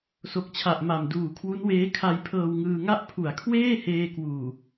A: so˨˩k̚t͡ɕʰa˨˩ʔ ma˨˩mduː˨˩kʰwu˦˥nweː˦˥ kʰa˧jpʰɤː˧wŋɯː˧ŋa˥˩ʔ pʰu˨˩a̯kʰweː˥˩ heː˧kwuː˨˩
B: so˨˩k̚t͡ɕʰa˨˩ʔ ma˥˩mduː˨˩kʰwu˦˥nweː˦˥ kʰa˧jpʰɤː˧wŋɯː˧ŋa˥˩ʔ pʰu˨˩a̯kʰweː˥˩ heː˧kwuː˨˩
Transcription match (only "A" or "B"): A